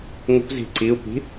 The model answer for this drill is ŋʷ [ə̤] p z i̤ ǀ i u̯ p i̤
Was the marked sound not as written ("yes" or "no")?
no